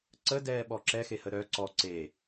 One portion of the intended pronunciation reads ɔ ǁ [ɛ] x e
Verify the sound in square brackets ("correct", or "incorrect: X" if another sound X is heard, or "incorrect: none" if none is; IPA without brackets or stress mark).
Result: correct